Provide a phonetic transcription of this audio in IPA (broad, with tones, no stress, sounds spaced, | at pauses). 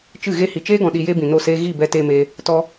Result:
t͡ʃ ɨ˦˨ ɣ e˦ h i˨ t͡ʃ eː˦ ɡ ɔ̃˨ ɗ i˨ j e˧ b ĩ˨ n o˦˨ s eː˦ ɣ i˦˨ b ɛ˧ t eː˧ m eː˧ | t ɔ˦